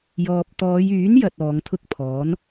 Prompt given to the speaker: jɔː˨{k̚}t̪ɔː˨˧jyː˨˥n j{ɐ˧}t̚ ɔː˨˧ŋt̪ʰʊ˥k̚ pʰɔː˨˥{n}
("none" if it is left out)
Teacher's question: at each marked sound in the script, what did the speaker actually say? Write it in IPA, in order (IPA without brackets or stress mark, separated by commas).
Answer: p̚, ɐ˧, n